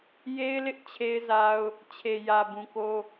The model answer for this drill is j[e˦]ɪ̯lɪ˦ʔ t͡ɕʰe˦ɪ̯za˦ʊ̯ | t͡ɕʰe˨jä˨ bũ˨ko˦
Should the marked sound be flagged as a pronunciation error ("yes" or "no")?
no